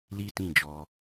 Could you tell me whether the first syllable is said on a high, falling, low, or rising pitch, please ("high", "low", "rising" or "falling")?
high